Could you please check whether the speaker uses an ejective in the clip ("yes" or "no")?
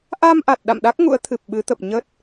no